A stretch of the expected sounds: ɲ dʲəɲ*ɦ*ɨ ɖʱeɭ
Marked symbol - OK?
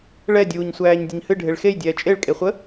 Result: no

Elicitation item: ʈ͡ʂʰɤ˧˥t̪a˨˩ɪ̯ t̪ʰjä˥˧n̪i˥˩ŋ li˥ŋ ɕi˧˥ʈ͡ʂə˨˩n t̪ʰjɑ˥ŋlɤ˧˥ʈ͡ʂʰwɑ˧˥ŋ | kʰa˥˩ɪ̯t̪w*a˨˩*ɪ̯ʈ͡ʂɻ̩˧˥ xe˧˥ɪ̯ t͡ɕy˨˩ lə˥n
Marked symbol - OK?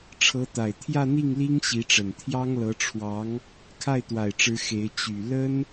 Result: yes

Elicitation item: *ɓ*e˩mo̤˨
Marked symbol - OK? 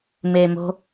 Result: no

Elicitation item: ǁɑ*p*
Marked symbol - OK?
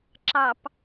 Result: yes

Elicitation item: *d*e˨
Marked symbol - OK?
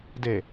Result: yes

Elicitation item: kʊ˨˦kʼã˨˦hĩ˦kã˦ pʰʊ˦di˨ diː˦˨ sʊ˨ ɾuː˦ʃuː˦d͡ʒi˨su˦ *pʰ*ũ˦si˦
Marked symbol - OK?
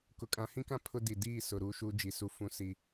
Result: no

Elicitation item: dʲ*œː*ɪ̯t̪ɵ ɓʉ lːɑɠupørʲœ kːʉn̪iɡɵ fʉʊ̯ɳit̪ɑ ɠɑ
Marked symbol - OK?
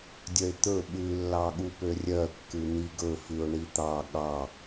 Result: no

